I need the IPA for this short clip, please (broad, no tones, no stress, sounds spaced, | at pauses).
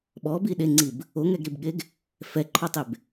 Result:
ɓ ɔ b i ɗ e ŋ͡ǀ i b | o ŋ ɛ ɡ ɾ i b ɠ e ɡ | f ɛ ǃʰ ɔ tˤ e b